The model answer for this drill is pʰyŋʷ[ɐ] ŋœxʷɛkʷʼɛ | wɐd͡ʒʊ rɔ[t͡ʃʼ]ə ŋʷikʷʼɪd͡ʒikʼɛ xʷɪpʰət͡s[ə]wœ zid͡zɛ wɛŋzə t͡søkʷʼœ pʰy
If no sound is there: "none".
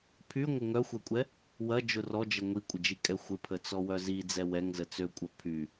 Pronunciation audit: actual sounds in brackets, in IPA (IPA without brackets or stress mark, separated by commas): ə, d͡ʒ, ɔ